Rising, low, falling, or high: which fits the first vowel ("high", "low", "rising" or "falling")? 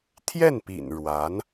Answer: falling